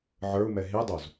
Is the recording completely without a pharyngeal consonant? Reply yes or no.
no